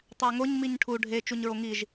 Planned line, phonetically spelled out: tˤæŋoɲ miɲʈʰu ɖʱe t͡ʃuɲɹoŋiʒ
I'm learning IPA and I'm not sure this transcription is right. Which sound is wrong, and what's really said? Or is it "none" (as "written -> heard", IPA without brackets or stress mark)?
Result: none